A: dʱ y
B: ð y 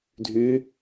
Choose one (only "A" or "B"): A